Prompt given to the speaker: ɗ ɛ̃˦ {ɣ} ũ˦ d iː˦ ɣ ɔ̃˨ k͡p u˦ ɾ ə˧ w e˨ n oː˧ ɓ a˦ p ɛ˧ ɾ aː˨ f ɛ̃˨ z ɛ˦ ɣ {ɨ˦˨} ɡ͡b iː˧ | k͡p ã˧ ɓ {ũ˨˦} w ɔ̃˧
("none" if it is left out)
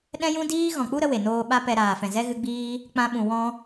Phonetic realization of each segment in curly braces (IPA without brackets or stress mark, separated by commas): j, ɨ˧, ũ˨